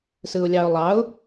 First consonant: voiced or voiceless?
voiceless